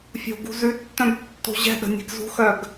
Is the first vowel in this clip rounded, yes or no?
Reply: yes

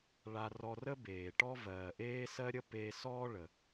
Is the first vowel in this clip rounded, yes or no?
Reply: no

